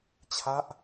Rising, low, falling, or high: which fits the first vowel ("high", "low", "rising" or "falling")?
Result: falling